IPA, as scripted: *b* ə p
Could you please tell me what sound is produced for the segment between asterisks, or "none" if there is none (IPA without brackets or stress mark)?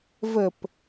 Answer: v